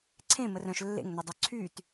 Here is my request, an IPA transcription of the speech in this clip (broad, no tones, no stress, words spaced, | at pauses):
ǀʰẽ mərœ̃ʃ lːḛŋnødˤœ ǀʰyt